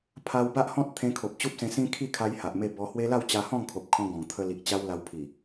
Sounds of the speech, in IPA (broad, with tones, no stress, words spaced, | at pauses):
pʰa˧wba˦ʔhɔ̃˦t̚ t̪ʰẽ˧kʰo˨p̚ t͡ɕu˦p̚sẽ˧sĩ˦ kʰi˥˧kʰa˧j ha˨ʔme˥˧ bɔ˧hwe˦ la˥˧wt͡ɕa˧ hɔ̃˥˧ŋkʰo˨p̚kʰɔ̃˧ ɡɔ̃˨˩ŋt̪ʰə˧li˨k̚ t͡ɕa˦wla˧w pʰi˨˩